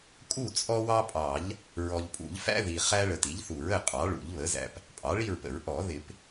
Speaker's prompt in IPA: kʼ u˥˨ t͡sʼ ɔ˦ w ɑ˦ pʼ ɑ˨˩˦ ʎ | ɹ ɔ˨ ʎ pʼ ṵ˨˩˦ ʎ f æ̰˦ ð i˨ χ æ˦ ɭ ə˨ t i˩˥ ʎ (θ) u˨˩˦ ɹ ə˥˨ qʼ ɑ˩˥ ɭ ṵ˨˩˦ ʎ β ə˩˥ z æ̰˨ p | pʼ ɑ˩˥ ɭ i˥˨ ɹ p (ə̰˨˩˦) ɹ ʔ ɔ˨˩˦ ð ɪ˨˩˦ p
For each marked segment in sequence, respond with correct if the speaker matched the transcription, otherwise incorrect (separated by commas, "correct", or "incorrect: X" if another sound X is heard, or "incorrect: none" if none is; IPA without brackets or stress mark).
correct, correct